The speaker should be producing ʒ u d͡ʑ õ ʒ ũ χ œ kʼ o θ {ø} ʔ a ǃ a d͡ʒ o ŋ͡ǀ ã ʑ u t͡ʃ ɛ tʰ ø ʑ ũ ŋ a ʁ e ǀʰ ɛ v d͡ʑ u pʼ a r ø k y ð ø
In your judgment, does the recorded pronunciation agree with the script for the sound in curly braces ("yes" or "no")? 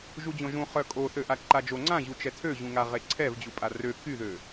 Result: yes